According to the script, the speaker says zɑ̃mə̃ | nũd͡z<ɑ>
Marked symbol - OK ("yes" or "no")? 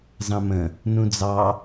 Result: yes